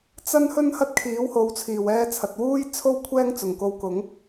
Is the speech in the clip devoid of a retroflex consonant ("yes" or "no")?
yes